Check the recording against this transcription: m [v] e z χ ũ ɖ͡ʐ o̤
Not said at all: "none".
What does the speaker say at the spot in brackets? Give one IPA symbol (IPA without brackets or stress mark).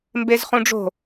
b